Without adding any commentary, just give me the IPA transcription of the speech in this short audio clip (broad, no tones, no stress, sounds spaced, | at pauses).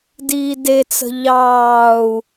d iː d e t͡s ə̤ ʎ ɑː u̯